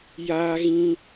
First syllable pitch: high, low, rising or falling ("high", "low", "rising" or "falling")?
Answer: high